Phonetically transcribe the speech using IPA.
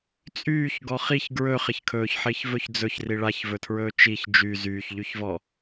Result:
t͡sʼ yː ç ɡ ɔ χ i ç ɡ ɹ ɵ χ ɪ ç kʰ ɵː ç ħ ɪː ç v ɵ ç d͡z ɵ ç r i ɭ a ç v ɵ tʰ ɹ ɵː t͡ʃ i ç d͡ʒ y z yː ç ʎ y ç v ɔ

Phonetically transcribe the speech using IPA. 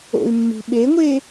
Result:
o̰ y̯ mː i̤ ɓ e ŋʷ e

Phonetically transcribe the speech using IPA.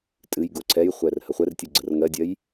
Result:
tʼ ɨ j ɡ o ǀʰ ɛ j χʷ ɛ r h ə χʷ ɛ r tʲ ɨ ɡ͡ǀ ə r ŋ ɜ dʲ ɜ j

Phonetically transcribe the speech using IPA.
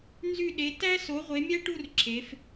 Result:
n z y˦˨ ɗ e˨˦ t æ˥ s o˨˦ ʁʷ e˨˦ mʲ æ˥ ʈ u˥ r ǁʰ e˨˦ f

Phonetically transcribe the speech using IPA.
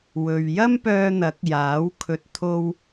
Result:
w ɵ˨ ɥ j ɐ˥ m p œː˧ n̪ ɐ˨˥ k̚ j aː˨˥ w kʰ ɵ˨ t̚ t̪ʰ o˧ w

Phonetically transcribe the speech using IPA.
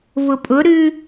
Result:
v ʊ pʼ ʊ ɾ ʉ

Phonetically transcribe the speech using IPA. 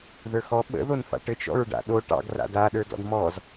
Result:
ð ə˞ x ɔ ɓ ə̰ ð o n f a̰ ʈ ɘ t͡ʃ ɔ̰ ɹ ɖ a̰ ɗ o ʈ ɑ̰ ɡ r a̰ d a ɗ ə˞ d ɔ̰ d m ɔ z

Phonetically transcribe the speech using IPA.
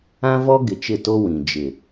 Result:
ã˦ v ɔ˦ ɡ ɪ˨ t͡ʃ ɪ˦˨ t o˦ w ĩ˨ d͡ʒ ɪ˨

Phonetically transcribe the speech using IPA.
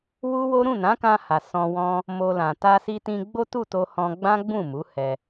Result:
w u˦ w o˦ ɾ ũ˦˨ n ã˨˦ k ã˧ h a˨ s ɔ̃˧ w ɔ̃˦ | m o˧ l ã˨ t a˧ s i˧ t ĩ˧ ɡ͡b o˦ t u˦˨ t o˧ h ɔ̃˧ ɡ͡b ã˦ ɡ͡b ũ˦˨ m u˨˦ h ɛ˧

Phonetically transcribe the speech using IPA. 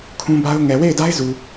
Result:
kʰ ũ˦ b a˦ ʊ̯ ŋ ɛ˨ w e˦˨ ɪ̯ d a˦ ɪ̯ z u˨

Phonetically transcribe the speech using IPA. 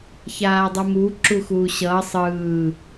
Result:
ç aː dˤ u m uː ǁ u x uː ɕ ʌː sˤ ɯː

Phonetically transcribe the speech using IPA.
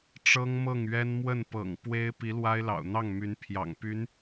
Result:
ʈ͡ʂ ɤ˥ ŋ m ɤ˥˩ ŋ ɥ ɛ˥ n m w ə˥˩ n p ɤ̰˨˩ ŋ p w e˥ ɪ̯ p i˧˥ l w a˥ ɪ̯ l ɑ̰˨˩ ʊ̯ n̪ ɑ˥˩ ŋ m y˧˥ n pʰ j ɑ̰˨˩ ŋ p y˧˥ n

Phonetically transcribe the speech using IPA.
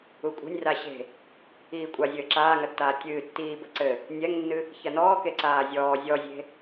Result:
u kʷʼ e̤ nʲ r a ɕ e̤ | iː kʷʼ a zʲ ɘː ǁ aː ŋ ɐ tː aː tʲ ɨː tː iː b ɘ ǀ ɘ | nʲ ɛ ŋ nː ɨ | ç ɐ n ɔː k e ǀ aː zʲ ɔː zʲ ɔ zʲ e̤

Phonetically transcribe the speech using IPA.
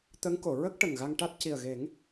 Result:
t̪ ə˧˥ ŋ k o˨˩˨ ɹ ə˦˥ k̚ ʈ ə˨˩ ŋ ɣ a˧ ŋ ʈ a˦˥ t̚ c i˨˩ ə̯ ɣ e˨˩˦ ŋ

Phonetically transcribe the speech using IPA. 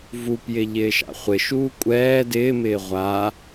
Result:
v u p j ɪ ʎ ɪː ʃ a̰ χʷ ɪ ʃ uː kʷʼ ɛː d ɪː m ɪː ʁʷ a

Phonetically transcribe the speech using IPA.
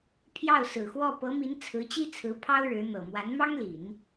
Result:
pʰ j ɑ˥˩ ʊ̯ s ɹ̩˨˩ x w ɔ˥˩ p ɤ˧˥ m i˧˥ n t͡sʰ ɹ̩˧˥ t͡ɕ i˥ t͡sʰ ɹ̩˧˥ pʰ ɑ˥ ʊ̯ ɻ ɻ̩˧˥ n̪ ɤ˨˩ m w a˧˥ n m ɑ˥ ŋ l i˨˩˦ n

